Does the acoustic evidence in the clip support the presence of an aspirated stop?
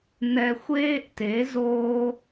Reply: no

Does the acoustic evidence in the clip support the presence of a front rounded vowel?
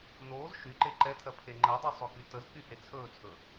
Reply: yes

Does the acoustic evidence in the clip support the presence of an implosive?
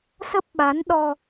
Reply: yes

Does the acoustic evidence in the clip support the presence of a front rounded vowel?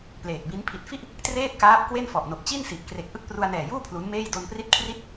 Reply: no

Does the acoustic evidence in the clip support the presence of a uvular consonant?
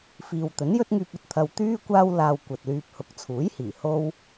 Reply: no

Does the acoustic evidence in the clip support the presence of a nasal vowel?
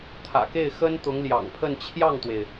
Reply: no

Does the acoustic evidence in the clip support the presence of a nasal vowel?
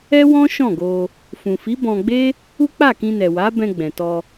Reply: yes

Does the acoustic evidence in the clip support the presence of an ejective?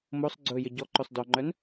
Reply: no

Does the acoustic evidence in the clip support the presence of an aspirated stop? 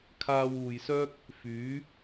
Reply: yes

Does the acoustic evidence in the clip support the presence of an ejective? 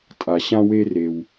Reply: yes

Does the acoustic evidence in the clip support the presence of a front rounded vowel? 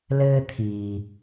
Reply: no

